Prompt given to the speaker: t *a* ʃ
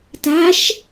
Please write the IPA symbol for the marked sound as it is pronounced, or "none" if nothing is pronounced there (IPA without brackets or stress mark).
a